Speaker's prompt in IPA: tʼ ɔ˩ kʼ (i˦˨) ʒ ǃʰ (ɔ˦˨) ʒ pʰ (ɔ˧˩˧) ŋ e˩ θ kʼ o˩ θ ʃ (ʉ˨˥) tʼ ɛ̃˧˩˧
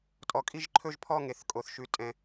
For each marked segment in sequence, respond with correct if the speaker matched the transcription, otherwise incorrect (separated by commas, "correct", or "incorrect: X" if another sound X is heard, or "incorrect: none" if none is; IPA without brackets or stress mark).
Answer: correct, incorrect: ɵ˦˨, incorrect: ɔ˦˨, correct